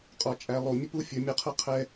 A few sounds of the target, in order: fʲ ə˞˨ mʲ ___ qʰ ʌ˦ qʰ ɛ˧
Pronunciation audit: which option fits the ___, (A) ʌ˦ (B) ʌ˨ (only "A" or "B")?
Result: A